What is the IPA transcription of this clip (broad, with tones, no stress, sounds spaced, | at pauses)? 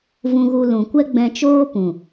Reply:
v ũ˧ ɣ u˧ l ũ˨ kʷ ɛ˦ ɡ͡b ɛ̃˧ t͡ʃ oː˦ p ũ˨